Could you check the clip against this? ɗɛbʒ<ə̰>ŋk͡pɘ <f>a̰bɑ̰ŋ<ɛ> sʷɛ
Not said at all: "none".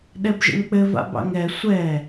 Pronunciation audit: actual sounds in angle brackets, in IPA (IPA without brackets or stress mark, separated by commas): ə̰, v, ɛ